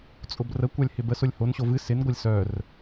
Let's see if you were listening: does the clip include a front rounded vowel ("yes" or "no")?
yes